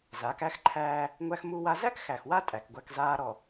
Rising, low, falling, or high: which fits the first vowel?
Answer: rising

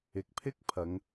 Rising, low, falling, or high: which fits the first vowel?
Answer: low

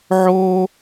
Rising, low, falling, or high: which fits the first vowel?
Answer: high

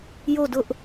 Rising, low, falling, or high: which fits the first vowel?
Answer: falling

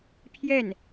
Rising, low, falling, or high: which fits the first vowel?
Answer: falling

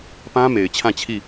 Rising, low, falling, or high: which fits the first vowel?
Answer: high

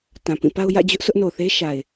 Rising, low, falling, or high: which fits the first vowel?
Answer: low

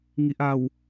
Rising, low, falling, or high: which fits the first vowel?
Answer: low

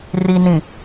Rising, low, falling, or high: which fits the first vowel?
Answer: low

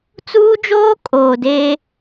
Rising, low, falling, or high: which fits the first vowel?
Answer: high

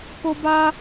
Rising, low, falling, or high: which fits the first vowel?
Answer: high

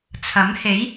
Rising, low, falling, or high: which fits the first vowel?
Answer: rising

